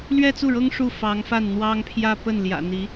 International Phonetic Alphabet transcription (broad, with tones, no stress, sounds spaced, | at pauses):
l ɥ ɛ˥˧ t͡s u˥˩ ɻ ɤ˥ ŋ ʂ u˥˩ f ɑ˧˥ ŋ f a˥˩ n n̪ w ɑ˥ ŋ pʰ j ä˥˧ p ə˥˩ n l j ä̰˨˩ n̪ i˧˥